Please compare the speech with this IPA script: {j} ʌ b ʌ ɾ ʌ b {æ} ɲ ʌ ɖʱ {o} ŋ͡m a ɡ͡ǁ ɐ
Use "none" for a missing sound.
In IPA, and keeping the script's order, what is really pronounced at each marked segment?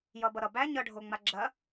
j, æ, o

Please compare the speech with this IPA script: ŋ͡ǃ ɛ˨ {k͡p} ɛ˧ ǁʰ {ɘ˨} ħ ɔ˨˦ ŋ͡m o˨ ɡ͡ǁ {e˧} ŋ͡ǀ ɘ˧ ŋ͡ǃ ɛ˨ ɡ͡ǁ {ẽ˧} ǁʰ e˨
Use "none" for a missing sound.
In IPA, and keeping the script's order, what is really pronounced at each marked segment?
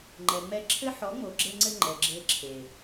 ŋ͡m, ɘ˦, e˧, e˧

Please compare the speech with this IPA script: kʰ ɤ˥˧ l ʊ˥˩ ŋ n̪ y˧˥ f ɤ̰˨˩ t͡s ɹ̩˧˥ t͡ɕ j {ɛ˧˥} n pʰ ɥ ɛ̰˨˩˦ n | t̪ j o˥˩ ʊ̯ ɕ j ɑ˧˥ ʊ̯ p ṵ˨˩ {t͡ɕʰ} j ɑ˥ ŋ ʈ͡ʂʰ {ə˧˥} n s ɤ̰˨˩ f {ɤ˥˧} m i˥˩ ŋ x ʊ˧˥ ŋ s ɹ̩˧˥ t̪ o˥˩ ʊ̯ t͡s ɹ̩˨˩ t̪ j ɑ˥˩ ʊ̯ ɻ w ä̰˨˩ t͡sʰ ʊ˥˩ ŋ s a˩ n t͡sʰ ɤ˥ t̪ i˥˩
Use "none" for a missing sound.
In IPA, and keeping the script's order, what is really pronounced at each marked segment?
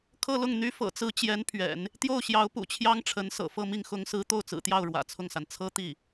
ɛ˧˥, t͡ɕʰ, ə˧˥, ɤ˥˧

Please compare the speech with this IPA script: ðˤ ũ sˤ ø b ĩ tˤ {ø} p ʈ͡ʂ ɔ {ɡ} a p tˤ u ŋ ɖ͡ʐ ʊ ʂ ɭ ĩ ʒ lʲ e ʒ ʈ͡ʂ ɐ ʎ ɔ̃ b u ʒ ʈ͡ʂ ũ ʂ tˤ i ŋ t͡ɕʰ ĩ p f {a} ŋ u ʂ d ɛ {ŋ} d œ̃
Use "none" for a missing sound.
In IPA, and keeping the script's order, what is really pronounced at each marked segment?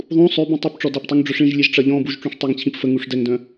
u, d, ə, ŋ

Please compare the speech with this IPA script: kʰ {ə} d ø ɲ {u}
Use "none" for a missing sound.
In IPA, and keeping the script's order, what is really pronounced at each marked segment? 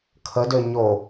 ə, o

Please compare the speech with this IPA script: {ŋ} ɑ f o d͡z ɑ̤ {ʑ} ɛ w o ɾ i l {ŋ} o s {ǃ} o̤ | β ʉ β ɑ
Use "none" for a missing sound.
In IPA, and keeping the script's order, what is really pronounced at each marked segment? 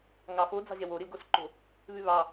ŋ, ʑ, ɡ, ǃ

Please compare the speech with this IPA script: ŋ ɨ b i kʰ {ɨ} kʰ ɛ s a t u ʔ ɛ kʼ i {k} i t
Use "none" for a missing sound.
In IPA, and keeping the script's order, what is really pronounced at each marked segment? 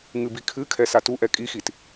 ɨ, x

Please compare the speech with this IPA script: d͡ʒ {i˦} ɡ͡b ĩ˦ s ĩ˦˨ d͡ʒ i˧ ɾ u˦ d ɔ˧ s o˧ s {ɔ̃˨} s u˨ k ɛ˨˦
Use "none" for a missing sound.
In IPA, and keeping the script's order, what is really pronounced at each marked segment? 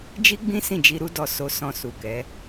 i˦, ɔ̃˧

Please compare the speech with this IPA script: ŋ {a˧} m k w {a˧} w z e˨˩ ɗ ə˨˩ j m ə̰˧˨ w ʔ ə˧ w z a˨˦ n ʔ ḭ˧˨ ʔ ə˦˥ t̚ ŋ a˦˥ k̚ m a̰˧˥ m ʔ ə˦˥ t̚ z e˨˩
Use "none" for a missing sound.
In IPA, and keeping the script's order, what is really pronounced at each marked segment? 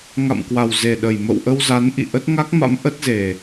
a̰˧˨, a˨˩

